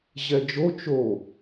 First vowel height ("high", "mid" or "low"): mid